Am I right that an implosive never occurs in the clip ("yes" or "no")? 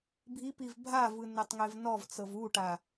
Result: yes